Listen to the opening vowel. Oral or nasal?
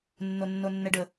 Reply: oral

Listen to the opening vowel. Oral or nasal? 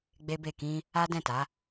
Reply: oral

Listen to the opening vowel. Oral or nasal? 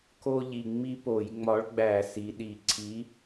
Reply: oral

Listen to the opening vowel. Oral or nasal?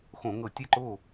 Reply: nasal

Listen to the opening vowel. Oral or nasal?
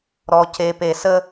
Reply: oral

